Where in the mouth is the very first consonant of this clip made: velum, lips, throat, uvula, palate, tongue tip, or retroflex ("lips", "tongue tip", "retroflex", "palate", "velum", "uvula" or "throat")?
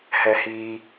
throat